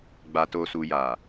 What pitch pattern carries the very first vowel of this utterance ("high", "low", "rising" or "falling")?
low